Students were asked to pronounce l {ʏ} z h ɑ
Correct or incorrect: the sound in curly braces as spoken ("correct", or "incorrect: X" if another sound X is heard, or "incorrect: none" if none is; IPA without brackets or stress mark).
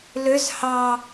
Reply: correct